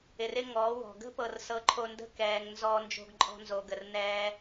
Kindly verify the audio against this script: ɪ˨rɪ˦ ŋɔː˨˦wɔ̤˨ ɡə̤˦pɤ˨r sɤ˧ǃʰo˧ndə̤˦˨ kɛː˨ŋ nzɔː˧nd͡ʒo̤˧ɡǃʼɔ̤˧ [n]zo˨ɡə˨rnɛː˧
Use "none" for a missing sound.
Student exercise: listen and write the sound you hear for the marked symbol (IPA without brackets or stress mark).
n